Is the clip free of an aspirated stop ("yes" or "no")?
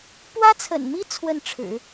no